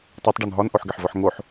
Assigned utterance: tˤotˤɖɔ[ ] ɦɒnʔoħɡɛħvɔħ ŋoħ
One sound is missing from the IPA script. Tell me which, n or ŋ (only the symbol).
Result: n